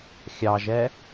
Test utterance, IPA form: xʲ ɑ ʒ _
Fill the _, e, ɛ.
ɛ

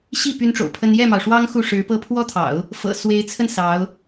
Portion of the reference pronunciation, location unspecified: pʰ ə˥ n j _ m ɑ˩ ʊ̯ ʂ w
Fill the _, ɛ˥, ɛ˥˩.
ɛ˥˩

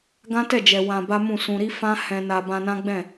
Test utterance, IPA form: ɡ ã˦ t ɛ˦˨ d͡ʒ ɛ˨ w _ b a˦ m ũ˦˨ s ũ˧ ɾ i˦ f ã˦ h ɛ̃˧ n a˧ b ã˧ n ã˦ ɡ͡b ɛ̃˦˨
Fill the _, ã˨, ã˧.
ã˧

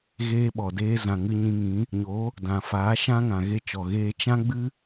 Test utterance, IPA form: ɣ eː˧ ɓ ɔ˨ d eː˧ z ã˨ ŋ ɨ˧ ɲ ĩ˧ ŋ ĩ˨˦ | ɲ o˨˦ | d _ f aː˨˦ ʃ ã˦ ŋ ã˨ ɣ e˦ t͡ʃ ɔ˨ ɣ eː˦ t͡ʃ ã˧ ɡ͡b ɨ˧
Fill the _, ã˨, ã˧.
ã˨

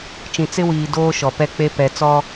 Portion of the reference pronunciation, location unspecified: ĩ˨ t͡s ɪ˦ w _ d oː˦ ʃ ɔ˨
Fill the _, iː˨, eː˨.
iː˨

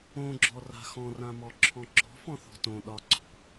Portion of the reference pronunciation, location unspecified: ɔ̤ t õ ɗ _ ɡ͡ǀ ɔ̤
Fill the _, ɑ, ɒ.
ɒ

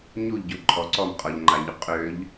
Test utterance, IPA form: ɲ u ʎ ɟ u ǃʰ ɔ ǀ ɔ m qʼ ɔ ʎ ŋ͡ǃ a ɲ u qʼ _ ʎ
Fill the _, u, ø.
ø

